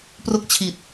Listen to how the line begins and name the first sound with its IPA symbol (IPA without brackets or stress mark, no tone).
p